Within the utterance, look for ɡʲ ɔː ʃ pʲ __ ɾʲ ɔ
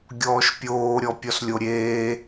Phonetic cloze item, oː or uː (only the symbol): oː